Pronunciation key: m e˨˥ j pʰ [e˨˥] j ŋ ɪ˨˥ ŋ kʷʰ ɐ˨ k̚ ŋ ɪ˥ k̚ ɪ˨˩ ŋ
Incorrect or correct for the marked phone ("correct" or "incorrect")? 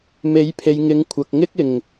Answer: incorrect